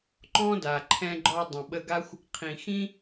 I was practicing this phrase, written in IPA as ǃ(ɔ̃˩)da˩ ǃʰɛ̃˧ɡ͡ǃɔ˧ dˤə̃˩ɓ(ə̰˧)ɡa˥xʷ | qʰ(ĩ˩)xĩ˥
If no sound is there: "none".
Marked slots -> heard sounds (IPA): ɔ̃˥, ə˧, ĩ˩

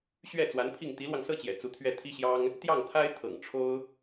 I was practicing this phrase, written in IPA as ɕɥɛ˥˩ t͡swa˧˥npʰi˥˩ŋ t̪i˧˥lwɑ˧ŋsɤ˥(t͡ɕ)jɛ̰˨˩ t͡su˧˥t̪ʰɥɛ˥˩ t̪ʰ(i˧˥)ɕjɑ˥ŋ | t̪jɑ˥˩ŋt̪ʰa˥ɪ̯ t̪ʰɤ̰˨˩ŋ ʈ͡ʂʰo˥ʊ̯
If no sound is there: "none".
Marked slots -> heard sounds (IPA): t͡ɕ, i˥

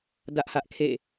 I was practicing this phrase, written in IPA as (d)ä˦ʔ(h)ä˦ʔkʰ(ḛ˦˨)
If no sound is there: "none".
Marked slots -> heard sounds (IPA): d, h, ḛ˦˨

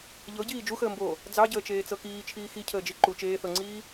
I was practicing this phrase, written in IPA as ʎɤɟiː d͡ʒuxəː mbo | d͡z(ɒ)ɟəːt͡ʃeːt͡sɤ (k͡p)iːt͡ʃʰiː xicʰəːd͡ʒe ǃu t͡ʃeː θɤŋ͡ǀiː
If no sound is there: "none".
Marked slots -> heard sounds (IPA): ɑ, k

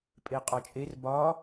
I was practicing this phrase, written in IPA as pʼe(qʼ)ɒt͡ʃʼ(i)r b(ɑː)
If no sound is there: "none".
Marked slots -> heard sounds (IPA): qʼ, e, ɒː

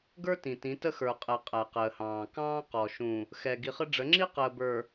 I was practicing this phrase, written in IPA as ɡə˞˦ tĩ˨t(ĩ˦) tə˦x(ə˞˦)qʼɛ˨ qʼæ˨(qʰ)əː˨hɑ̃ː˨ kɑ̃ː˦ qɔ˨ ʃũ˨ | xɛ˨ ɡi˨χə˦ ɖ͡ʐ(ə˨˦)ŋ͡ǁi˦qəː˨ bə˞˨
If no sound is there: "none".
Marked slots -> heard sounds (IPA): ĩ˨˦, ə˞˨, q, ə˨˦

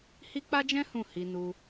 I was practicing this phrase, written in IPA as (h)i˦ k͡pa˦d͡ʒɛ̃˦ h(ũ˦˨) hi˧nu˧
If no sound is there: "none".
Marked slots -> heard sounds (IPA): h, ũ˦˨

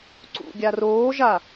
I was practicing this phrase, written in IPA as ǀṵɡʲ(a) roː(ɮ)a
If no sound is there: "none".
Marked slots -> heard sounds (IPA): a, ʒ

